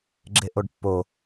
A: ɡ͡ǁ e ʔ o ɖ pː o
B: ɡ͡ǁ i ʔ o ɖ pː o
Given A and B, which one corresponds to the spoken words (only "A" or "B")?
A